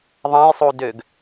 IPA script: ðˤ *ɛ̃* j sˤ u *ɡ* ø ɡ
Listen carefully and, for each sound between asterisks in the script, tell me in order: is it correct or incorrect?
correct, incorrect

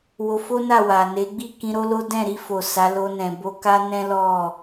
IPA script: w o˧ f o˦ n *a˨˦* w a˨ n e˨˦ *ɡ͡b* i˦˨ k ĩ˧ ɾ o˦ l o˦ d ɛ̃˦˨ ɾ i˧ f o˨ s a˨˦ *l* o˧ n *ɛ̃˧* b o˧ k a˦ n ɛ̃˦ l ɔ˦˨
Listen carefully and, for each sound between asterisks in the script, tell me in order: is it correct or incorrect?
incorrect, correct, correct, incorrect

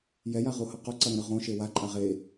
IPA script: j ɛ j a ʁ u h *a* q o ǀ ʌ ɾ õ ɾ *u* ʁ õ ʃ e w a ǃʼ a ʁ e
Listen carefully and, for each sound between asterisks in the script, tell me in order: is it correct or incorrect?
incorrect, incorrect

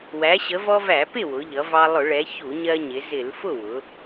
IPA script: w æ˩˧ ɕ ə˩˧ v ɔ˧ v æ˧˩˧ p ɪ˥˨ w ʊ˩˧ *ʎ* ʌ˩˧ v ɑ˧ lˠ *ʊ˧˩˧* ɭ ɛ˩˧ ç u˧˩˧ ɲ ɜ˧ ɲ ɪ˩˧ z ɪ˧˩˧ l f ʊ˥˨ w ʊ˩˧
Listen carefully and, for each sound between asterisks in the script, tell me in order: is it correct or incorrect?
correct, correct

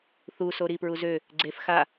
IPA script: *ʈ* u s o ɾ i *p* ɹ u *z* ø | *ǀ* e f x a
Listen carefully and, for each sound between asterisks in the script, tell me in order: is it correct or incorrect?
incorrect, correct, correct, incorrect

